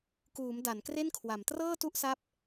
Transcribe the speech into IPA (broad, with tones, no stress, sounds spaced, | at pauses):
k uː˩˦ m d a˩˦ n k r e˥˩ n kʰ w a˩˦ m t r ɤː˥˩ t u˥˩ ʔ s a˦˥ p̚